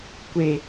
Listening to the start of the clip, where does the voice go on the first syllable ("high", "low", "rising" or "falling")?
low